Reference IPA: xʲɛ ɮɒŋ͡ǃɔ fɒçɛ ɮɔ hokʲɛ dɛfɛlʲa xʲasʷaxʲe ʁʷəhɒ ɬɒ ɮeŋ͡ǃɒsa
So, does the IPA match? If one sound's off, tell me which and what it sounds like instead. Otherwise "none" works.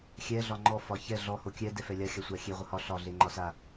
none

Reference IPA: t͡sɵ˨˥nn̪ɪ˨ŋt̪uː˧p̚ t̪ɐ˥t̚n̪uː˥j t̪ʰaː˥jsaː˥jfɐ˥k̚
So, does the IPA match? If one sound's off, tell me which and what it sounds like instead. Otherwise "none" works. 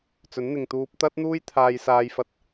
k̚ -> t̚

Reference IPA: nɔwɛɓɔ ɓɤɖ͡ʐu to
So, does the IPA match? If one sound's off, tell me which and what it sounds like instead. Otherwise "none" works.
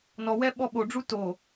ɤ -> o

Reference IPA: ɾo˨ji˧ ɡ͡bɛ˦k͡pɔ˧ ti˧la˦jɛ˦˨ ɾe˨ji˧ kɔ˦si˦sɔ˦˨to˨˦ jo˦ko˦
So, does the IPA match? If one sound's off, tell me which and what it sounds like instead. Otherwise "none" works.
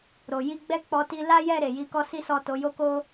none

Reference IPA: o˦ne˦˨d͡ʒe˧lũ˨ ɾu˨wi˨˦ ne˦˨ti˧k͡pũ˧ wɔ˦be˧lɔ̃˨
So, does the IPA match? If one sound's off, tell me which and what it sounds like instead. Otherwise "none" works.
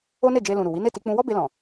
none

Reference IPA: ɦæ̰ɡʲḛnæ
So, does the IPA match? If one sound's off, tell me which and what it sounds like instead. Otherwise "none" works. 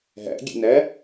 none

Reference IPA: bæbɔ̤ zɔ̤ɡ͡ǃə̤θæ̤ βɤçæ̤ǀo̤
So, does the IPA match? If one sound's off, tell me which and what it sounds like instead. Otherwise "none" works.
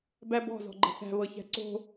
none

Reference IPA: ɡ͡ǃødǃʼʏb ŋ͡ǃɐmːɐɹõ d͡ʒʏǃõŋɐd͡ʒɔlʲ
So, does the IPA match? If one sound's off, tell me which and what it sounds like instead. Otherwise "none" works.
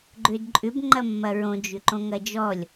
none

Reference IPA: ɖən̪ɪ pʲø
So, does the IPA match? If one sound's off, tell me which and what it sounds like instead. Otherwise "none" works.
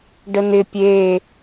ø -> e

